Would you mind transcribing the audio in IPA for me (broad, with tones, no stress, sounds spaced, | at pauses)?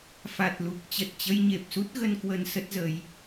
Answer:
f a˨˩ t̚ l u˨˩ k̚ t͡ɕ ə˨˩ t̚ t͡ɕ ə˧ j ɲ e˨˩ p̚ s u˦˥ t̚ ɣ ə˧ n k w ə˧ n s ə˦˥ t̚ z ə˨˦ j